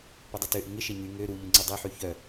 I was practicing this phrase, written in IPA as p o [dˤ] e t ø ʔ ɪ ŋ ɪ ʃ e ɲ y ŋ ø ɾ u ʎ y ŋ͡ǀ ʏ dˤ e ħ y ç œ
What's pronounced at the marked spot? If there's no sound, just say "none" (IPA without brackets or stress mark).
dˤ